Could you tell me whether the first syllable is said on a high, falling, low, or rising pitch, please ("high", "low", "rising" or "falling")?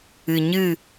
low